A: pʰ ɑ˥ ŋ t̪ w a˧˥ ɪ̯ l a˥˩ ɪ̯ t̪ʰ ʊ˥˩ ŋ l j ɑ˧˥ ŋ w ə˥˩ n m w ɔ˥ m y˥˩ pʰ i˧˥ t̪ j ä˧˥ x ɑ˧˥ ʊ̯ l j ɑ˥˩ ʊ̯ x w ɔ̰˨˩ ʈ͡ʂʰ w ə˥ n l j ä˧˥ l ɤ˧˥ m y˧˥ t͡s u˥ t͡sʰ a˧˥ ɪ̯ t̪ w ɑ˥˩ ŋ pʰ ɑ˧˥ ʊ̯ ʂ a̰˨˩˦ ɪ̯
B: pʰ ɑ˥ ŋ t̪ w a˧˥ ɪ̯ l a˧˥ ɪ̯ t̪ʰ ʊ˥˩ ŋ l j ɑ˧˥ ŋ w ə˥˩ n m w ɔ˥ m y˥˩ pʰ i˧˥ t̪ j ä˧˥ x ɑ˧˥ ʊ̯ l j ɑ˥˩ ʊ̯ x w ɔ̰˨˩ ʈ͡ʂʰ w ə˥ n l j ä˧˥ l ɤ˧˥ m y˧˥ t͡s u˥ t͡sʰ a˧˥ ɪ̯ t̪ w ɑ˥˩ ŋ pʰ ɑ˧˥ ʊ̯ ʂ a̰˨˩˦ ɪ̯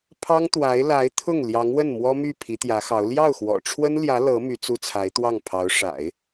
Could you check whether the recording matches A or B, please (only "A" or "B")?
B